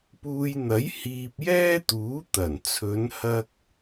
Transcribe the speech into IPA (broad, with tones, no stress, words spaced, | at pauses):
puː˧jn̪ɐ˨˥j hiː˧p̚jɛː˥t̪uː˨˥ t̪ɐ˨˩nt͡sʰɵ˨˧n hɐ˥k̚